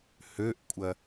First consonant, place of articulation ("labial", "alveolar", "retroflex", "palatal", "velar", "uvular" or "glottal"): glottal